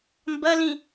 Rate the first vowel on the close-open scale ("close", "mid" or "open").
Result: open